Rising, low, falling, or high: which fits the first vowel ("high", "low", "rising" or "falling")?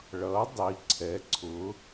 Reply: rising